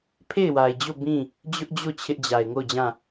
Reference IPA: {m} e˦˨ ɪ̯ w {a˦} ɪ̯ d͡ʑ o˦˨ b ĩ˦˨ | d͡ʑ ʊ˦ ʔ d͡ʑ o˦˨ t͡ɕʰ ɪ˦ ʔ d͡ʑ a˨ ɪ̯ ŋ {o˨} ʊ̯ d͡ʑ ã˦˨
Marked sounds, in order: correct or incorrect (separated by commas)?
incorrect, incorrect, incorrect